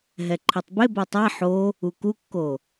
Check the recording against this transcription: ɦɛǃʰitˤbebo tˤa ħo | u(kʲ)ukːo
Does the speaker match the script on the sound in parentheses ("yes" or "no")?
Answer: no